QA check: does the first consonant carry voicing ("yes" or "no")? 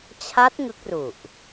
no